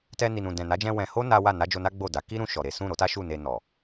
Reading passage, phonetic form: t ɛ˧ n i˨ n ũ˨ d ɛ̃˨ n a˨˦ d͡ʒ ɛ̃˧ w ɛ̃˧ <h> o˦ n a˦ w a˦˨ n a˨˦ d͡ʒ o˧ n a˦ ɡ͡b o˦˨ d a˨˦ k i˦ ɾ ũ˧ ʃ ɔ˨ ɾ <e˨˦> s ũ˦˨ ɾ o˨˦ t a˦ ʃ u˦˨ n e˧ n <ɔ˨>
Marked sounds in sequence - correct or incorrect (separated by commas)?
correct, correct, correct